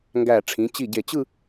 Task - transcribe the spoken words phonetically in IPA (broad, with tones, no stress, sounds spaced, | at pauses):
ŋ ɡ æ˧˩ ʈ͡ʂʰ ĩ˩˧ t͡ɕ i˧˩ ɟ e˧˩ t͡ɕ ɯ˥˧